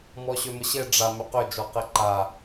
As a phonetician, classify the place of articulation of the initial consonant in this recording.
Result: labial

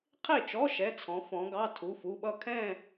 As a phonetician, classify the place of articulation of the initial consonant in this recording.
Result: uvular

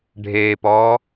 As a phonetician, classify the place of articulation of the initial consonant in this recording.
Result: retroflex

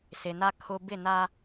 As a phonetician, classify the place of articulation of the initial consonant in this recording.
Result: alveolar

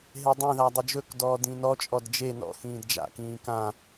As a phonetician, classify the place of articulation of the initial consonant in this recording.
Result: glottal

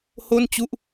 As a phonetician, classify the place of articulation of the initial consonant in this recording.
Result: glottal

